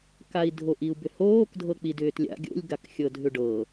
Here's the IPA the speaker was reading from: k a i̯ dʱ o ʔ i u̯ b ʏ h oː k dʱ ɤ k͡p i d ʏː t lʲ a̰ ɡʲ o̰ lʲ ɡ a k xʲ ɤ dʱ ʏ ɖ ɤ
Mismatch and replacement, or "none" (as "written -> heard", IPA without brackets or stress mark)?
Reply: none